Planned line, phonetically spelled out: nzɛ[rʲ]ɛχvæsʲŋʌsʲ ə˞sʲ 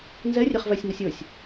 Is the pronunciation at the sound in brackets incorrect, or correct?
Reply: correct